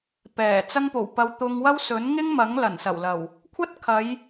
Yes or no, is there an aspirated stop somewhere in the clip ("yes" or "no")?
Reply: yes